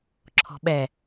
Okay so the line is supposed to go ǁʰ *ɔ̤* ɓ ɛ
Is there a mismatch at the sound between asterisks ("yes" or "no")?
no